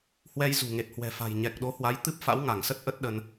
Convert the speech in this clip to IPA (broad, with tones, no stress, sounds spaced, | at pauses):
h w ɛ˧ j z ṳ˨˩ ŋ e˨˩ t̚ h w ɛ̤˨˩ f a̤˨˩ j ɲ ɛ˨˩ k̚ ɗ o˨˦ h w a˨˦ j t̪ ɨ˦˥ p̚ f a̰˧˥ w ŋ a˧˩ ŋ s ə˦˥ t̚ ʔ ə˦˥ t̚ ɗ ə˧ n